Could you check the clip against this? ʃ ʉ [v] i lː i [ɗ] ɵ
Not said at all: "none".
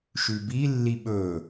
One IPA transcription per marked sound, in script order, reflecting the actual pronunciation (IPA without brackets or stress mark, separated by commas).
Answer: b, ɓ